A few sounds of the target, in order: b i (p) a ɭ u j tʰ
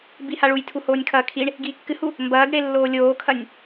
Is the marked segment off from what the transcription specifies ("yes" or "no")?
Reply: yes